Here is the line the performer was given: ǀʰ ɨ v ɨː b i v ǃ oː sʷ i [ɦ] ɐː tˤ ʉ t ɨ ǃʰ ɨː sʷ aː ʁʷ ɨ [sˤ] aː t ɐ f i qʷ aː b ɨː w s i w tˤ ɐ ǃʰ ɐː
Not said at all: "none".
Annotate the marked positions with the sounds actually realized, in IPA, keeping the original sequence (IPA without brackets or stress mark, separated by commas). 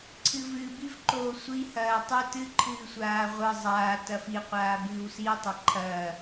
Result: h, zˤ